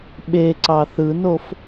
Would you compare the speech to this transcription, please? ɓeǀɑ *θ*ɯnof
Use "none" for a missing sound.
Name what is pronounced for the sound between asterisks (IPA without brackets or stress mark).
θ